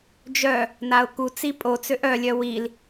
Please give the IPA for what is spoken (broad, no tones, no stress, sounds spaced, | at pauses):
d͡ʒ œ | n a ʊ̯ k u t͡s i pʼ o t͡s ø ʔ œ lʲ œ w i l